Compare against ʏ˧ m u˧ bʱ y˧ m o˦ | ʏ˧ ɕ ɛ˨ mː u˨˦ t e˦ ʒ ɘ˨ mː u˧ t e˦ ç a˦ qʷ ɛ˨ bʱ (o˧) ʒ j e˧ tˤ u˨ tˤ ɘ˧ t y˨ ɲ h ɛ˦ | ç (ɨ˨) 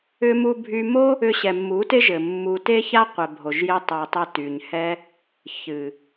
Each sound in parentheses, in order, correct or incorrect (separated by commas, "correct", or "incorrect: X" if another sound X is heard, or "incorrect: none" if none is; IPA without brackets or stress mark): incorrect: o˨, correct